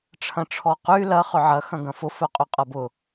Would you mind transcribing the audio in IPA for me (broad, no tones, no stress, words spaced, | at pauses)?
ʈ͡ʂʰɐ̃ʈ͡ʂʰɔqy lɐ χʏʕɐ xɐ̃ɡɐ̃fʊ fœqʼyqʼɐbʊ